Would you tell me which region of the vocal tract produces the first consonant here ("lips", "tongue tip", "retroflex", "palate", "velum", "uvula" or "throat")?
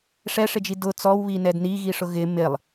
retroflex